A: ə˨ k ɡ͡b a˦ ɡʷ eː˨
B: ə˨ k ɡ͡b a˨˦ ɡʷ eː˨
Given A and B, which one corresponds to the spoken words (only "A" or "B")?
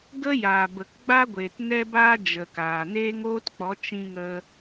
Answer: A